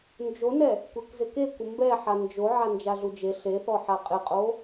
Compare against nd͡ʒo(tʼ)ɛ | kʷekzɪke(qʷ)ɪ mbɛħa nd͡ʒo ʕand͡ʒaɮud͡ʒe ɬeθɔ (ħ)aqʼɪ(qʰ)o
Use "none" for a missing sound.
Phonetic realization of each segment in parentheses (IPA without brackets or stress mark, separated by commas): n, kʷ, ħ, qʼ